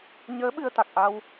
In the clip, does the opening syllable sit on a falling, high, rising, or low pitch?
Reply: rising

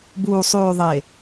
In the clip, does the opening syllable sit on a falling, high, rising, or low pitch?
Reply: low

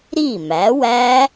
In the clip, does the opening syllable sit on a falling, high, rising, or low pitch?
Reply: falling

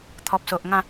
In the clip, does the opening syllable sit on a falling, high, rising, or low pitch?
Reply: low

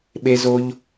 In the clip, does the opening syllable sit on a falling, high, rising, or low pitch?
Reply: high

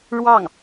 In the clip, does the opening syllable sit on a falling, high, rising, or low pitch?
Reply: falling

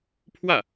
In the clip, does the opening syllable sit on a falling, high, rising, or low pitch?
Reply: falling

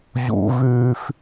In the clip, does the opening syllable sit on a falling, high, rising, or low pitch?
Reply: high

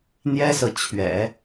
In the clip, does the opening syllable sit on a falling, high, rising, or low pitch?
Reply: high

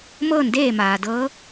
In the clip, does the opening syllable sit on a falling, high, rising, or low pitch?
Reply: falling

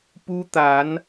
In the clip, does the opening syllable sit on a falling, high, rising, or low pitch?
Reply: high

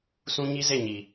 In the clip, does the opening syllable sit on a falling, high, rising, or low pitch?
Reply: high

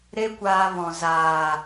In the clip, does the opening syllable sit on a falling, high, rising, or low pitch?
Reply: high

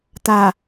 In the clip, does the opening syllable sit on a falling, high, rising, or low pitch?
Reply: low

